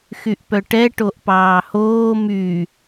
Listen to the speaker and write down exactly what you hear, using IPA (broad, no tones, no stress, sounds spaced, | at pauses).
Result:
x y ʔ p œ ʈ ɛ ʈ o ʔ p ɑː h oː m y